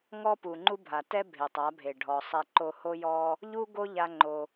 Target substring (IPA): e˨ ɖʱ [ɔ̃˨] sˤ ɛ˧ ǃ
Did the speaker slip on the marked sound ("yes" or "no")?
yes